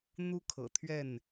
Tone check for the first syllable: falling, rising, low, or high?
high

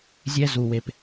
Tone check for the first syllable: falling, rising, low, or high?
high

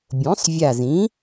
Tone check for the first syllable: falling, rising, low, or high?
rising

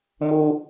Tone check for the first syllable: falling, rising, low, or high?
high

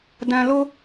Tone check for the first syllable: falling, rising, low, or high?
low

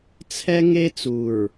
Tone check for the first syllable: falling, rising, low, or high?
high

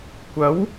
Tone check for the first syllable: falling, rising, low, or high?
rising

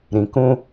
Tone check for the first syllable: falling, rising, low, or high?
low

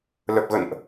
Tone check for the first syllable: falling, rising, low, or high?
low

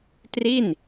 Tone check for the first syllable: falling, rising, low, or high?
falling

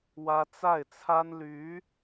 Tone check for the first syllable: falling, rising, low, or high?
high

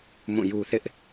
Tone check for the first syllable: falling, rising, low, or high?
falling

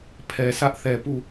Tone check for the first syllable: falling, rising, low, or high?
low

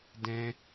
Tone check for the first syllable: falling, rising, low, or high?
high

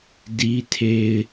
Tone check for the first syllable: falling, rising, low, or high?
high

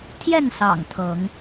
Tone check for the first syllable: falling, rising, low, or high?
falling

